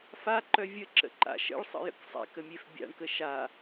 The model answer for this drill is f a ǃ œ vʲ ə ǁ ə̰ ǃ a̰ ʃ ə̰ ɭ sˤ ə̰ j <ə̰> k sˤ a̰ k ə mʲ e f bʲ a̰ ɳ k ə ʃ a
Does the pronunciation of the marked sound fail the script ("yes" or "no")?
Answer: no